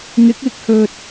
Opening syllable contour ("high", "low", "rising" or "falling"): rising